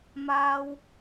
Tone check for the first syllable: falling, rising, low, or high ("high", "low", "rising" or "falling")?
low